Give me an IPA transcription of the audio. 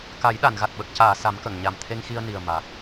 ka˨˩˦jɗa˨˩˨nɣa˨˩t̚ ɓə˨˩k̚caː˨˩˨ sa˨˩˦mkə˨˩˨ŋ ɲa˨˩mt̪ʰe˧ŋxi˧ə̯ni˨˩ə̯ ma˨˩k̚

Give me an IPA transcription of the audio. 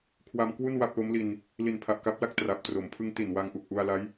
kʰwa˧mkwu˥˩n wa˥˩p̚lo˦˥mli˧n | li˨˩npʰa˨˩ʔka˦˥p̚la˥˩k̚ tra˨˩p̚ tro˩˦mpʰɯ˦˥ŋti˨˩n wa˧ŋʔu˨˩k̚ʔu˧a̯la˦˥j

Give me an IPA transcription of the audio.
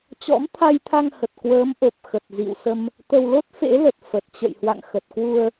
t͡ɕɔ̰˧˥mt̪ʰa˧jt̪ʰa˧ŋhə˨˩t̚ kwəː˨˦mʔo˨˩p̚ xə˨˩t̚zḭ˧˨w sə˧m | t̪ə˧w lo˦˥t̚fḛ˧˥lə˨˩t̚ fə˨˩t̚ t͡ɕə̰˧˨jhwa̰˧˨ŋxə˨˩t̚kwu˧ə̯

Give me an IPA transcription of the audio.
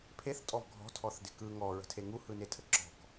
pʰeθtʼɔv ɡʱɔ̤tʰɔθdɪ kɯ ŋɔɹə̤tʰe ŋuhɯnetʰə ǁɔ̤k

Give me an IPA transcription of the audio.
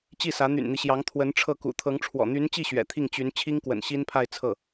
t͡ɕi˥˩sä˧˥ n̪y̰˨˩nn̪i˦ɕjɑ˧˥ŋ t̪ʰwə˧˥nʈ͡ʂʰɤ˥˩ kṵ˨˩t̪ʰɤ˧˥ŋ ʈ͡ʂʰwɔ̰˨˩n̪y˧˥nt͡ɕi˥˩ ɕɥɛ̰˨˩t̪ʰi˥˩ŋt͡ɕy˧˥n t͡ɕʰi˥ŋkwə̰˨˩nɕi˥npʰa˥˧ɪ̯ t͡sʰɤ˥˩

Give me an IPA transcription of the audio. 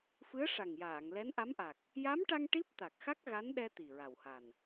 fɨ˧˥ə̯ʂa˨˩ŋjaː˨˩˨ŋ lɛ˧˥nʔa˧˥mʔa˨˩k̚ | ja˧˥mʈa˧ŋ ʈi˦˥p̚t̪a˨˩k̚xa˦˥k̚ ɣa˧˥nɗɛ˧ t̪i˨˩ɹa˨˩wha˨˩n

